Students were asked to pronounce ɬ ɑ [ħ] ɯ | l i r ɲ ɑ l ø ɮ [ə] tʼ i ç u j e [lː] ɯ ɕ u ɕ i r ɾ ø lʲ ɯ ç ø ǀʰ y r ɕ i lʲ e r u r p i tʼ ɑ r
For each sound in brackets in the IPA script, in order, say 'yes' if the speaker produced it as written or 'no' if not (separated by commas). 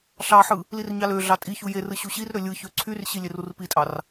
yes, no, no